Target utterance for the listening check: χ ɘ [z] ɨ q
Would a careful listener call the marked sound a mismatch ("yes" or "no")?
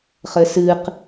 yes